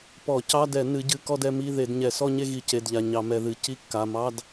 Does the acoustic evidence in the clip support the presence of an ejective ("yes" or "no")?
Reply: no